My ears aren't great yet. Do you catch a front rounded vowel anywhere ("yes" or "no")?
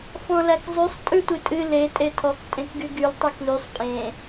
yes